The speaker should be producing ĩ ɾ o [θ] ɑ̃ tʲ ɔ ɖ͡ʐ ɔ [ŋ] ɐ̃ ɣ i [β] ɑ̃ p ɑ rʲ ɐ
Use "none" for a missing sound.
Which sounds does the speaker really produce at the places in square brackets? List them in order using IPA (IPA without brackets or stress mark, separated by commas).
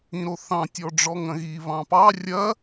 θ, ŋ, β